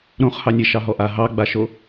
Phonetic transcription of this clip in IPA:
ɾõχhɑnʲe ʃɑɦɔʔa ɦɑɡ͡baʃo

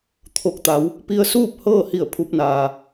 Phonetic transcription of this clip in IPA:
t̪ʰo˧˩k̚t̪a˩˧w | pi˧ə̯suː˥˨p̚ hɤː˥˨hi˧˩ə̯ pʰu˧p̚naː˩

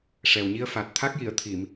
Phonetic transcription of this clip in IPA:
ʂɛ˨˩wɲi˧ə̯ fa˨˩t̚ t̪ʰa˦˥k̚ji˨˩˨ə̯t̪ʰi˨˩˨m

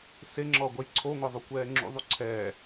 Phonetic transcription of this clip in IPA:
seŋ͡ǁɔɡʷɛj ǀʰoŋʷɛðˤukʷɛː ŋ͡ǁṵðˤu ǀʰɛː

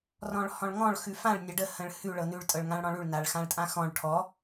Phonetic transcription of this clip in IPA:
rɔ̃ɭhɔ̃ɭŋɔ̃ɭ xʉfãɭ nʲaɖə hə̃ɭhʉ ɭɤnʉɭ tʼɤɭŋãɭɽɔ̃ɭʉɭ naɭxãɭtʼãxɔ̃ɭ ʈʰɔ

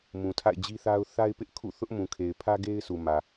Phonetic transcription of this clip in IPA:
mũ˨tʰa̰˦˨ɪ̯d͡ʑi˦θa˦ʊ̯ θa˦ɪ̯pɪ˦ʔ kʰṵ˦˨θʊ˦ʔmũ˨kʰe˨ɪ̯ pʰä˦ɡe˦ɪ̯ su˨ mä˨

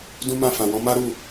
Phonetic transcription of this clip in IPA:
dũ˦mã˦˨ fã˨wɔ̃˧ ma˦ɾu˦˨

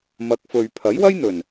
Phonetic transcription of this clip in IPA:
mɐ˨˥k̚fɵ˨ɥ pʰɐ˨˥jwɐ˥jn̪ɵ˨˩n

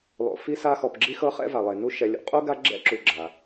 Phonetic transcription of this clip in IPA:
lˠo̰˨ fi˦sa˦xɔ˨pɡ͡ǁi˦ xɤ˦χɛ̰˦va˩lˠe˩ nu˦ ʃɛ˨lʲṵ˩qʼu˥ ɡa˦ ɡ͡ǁɛ̰˥ǁu˨ɡ͡ǁa˩

